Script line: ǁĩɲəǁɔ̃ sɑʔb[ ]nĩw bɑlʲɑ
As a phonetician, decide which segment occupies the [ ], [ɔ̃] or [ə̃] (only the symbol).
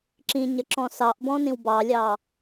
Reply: ɔ̃